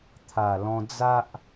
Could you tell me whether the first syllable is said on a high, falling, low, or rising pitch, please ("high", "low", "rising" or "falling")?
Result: low